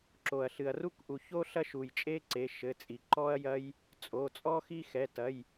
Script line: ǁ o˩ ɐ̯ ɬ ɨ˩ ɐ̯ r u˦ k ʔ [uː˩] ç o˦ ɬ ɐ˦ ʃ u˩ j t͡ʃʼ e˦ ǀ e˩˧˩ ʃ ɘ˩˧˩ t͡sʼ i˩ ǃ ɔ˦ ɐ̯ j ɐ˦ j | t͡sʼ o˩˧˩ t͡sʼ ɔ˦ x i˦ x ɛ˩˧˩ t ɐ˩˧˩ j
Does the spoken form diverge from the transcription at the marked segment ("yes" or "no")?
yes